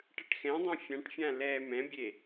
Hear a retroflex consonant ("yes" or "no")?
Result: yes